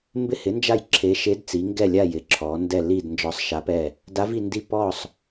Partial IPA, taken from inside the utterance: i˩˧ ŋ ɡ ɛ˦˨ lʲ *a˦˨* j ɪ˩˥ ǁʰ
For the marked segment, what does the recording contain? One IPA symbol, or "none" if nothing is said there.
a˦˨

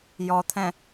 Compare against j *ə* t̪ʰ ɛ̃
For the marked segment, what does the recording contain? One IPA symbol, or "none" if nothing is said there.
ɔ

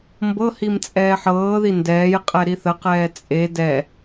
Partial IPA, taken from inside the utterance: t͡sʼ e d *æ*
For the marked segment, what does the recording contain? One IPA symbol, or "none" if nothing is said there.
ɛ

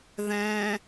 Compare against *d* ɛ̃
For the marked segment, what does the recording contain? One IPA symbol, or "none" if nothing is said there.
ð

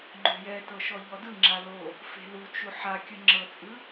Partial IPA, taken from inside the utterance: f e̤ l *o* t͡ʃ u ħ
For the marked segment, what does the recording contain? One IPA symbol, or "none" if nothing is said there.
u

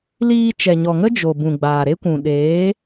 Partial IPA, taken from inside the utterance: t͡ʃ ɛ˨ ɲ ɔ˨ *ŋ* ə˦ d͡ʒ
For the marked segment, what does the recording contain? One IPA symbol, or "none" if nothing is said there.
ŋ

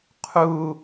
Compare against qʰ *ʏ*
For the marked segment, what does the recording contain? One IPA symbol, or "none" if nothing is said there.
u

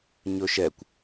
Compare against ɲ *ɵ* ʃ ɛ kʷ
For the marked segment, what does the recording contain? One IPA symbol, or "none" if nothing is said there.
ɵ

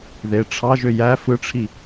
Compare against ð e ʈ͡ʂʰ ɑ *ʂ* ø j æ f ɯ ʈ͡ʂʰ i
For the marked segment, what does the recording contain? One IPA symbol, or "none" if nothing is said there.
ʒ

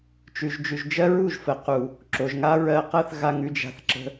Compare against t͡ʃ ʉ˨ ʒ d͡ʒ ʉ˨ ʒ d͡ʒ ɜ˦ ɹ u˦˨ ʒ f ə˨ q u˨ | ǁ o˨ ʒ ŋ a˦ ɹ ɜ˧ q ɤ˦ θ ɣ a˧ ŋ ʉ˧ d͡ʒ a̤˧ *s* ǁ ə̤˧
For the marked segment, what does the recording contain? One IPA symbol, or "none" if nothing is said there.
θ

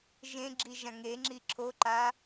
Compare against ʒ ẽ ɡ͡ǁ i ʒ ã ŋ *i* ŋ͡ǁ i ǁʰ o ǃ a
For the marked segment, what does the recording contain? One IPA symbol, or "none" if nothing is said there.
e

